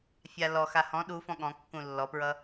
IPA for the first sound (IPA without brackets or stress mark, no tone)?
fʲ